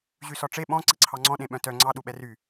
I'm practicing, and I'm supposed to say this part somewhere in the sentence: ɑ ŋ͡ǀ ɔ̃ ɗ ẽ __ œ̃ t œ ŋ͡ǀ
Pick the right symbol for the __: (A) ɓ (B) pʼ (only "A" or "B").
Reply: A